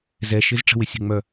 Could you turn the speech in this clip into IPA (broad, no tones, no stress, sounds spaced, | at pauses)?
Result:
z ɛ ʃ ɪ z ʈ͡ʂ ə̤ w ɪ sʲ ə̤ ŋ͡m œ